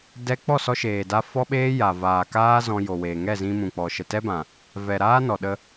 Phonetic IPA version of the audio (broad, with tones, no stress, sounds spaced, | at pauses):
d ɛ˦ k͡p ɔ˦˨ s ɔ˧ ʃ eː˨ d a˧ f ɔ˦ ɓ eː˦ j a˨ v aː˨ k aː˦ z ɔ̃˧ j o˨ w eː˨ ŋ ɛ˦˨ z ĩ˧ m ũ˨ k͡p ɔ˨ ʃ ə˨ t ɛ˦ b ã˨ | v ɛ˨ ɾ aː˦ n ɔ˨ ɗ ə˧